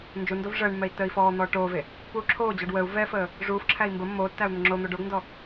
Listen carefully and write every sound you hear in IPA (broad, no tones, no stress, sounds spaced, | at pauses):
n d͡ʒ u n d o v ʐ əː ɳ mː ɛ i̯ tː əː i̯ f ɔː n̪ ɔː ʈ oː v e | p uː ǁʰ oː d͡ʑ ɔ ɖ w ə u̯ v ɛ f əː | ʐ uː f ǁʰ æ i̯ m b ə mː oː tː æ u̯ n̪ ə ŋ͡ǁ o n̪ o ɖ o ɡ n d ɔ